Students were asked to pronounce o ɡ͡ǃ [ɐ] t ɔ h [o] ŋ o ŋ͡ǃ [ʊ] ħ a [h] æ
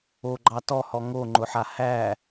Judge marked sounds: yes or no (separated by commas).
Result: no, no, yes, yes